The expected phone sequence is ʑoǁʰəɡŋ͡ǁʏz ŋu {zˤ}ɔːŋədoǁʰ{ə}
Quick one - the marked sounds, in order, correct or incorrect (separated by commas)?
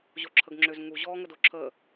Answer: incorrect, incorrect